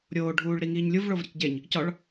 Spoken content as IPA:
ɾʲ oː ɖʱ uː ɭ ɾ i ŋ iː ɲ lʲ u v ɭ o v ɾʲ ɒ c ɟ e ɲ | c ɒ ɭ

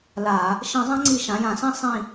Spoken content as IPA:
l a˧˩˧ | ʃ ĩ˧˩˧ zˤ ã˧˥ ŋ͡ǀ i˧˩˧ ʃ ã˩˧ j ã˧˩˧ s ĩ˦˨ sˤ ĩ˦˨

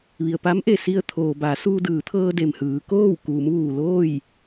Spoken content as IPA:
ʋ i˩ ə̯ p a˧˥ m ʔ e˩ s i˧ ə̯ t̪ʰ oː˩ b a˩˧ s uː˧ d ɯː˩˧ t̪ʰ ɤː˧ d e˩ m h ɯː˩˧ k oː˥˨ w k uː˩˧ m ʋ uː˩ l oː˥˨ j

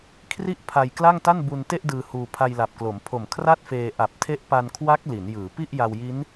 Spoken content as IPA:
kʰ r i˥˩ ʔ pʰ a˧ j k l a˥˩ ŋ t a˥˩ n b u˧ n t e˥˩ ʔ d ɯː˧ h uː˧ pʰ a˧ j l a˨˩ p̚ k l o˩˦ m pʰ o˨˩ m kʰ r a˥˩ t̚ f eː˧ ʔ a˨˩ p̚ tʰ e˦˥ ʔ p a˧ n kʰ w a˦˥ k̚ l i˩˦ n j ɯː˩˦ p i˥˩ ʔ j a˧ w j i˦˥ n

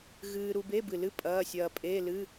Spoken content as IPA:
ɣ ɨː˧ ɾ u˧ b e˧˥˧ b ɨ˨˩ l ɨ˧˥˧ pʼ ɐː˧˥˧ sʲ ɐː˧ pʼ eː˧˥˧ l ɨ˧˥˧

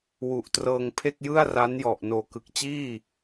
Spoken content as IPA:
w u˨˩ ʔ t r ɤː˧ ŋ pʰ e˥˩ k̚ j ɯ˥˩ a̯ r a˦˥ n j ɔ˨˩ ʔ n oː˨˩ k ɯ˨˩ k̚ t͡ɕ iː˥˩

